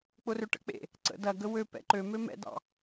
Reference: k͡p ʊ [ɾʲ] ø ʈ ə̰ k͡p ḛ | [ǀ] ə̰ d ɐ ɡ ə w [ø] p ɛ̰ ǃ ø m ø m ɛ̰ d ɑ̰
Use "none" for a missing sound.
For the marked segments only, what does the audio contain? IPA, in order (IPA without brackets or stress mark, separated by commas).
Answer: r, ǀ, ø